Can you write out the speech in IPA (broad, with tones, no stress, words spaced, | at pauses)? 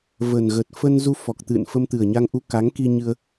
və˨˩nɣə˨˩t̚ fə˧nzu˧ fɔ˨˩k̚t̪ɨ̰˧˨n fə˧mt̪ɨ˨˩ə̯ɲa˧ŋʔu˧ ka˨˦ŋki˧ɲɨ˧ə̯